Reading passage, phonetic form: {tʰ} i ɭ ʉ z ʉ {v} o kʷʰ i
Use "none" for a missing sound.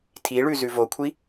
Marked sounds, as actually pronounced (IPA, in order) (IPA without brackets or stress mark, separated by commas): tʰ, v